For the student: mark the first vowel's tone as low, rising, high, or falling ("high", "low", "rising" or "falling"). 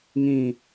falling